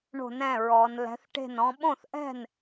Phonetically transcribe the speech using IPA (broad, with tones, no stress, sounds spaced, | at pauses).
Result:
ɳ o̤˧˩˧ n ɛ̃˩˧˩ ɹ ɔ˩˧ n l ɛ̤˩˥ θ ʈ e̤˥˩ n ɔ̃˧˥ ɓ õ˥˩ θ ʔ ɛ̤˥˩ n